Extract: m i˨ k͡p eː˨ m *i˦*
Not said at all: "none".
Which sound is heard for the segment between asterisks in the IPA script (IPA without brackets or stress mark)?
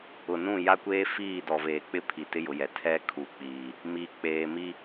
i˦